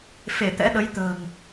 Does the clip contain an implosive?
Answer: yes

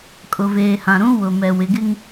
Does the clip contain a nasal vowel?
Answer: yes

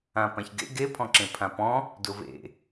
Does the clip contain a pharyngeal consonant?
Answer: no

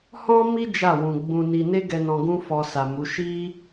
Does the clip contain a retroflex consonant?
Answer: no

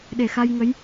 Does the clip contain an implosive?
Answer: yes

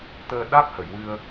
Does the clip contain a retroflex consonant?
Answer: no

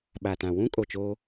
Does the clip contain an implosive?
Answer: yes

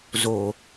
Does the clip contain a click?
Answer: no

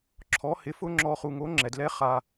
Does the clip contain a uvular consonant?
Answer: yes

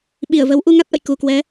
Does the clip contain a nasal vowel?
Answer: no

